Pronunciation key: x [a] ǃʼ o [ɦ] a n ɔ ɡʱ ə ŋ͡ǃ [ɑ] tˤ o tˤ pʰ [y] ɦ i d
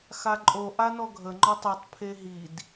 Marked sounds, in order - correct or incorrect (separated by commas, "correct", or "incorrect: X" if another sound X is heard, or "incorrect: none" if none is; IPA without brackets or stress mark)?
correct, incorrect: ʔ, incorrect: ɔ, incorrect: e